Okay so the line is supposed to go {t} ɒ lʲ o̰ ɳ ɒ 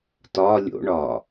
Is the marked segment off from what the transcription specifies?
no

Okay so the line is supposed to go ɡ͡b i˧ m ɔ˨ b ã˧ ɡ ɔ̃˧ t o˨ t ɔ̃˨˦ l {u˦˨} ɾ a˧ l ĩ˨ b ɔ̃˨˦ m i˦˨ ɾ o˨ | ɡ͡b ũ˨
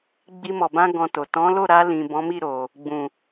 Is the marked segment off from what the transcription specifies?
yes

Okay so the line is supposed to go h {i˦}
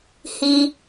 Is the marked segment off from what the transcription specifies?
no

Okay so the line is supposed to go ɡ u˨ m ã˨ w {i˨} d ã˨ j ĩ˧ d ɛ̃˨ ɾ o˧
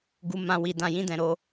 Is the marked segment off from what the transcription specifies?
no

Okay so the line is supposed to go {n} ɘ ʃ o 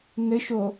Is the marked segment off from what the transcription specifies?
no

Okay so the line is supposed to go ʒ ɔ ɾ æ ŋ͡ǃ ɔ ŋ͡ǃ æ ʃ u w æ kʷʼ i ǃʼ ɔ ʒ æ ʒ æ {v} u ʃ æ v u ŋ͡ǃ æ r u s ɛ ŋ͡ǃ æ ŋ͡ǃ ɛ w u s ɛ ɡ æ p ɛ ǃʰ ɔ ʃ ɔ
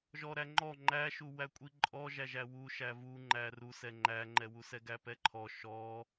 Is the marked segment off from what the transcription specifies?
yes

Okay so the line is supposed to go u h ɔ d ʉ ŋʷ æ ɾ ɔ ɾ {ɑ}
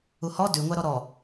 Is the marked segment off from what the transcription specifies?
yes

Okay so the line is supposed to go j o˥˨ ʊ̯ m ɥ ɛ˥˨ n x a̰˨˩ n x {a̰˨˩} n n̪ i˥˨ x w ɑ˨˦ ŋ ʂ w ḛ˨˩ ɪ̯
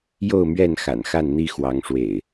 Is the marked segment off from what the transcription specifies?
yes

